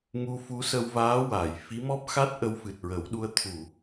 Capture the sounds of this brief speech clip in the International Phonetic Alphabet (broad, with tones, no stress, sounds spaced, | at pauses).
ŋ u˧ f u˧˥ s ə˧ w v aː˧˥ w a˨˩˨ j f i˧˥ m ɔ˦˥ p̚ x a˦˥ t̚ ʔ ə˧ w f ɨ˨˩ t̚ ɹ ə˨˩˦ w ɗ u˧ ə̯ t̪ʰ u˨˩˨